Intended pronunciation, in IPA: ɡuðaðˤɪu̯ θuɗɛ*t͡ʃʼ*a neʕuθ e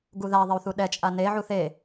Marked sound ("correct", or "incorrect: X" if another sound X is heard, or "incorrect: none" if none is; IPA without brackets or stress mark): correct